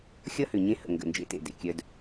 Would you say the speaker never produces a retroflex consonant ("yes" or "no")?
yes